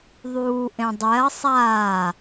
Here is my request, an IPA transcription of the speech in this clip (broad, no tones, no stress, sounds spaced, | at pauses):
ðˤ uː ʔ ẽ dˤ ɛ ɐ̯ sˤ aː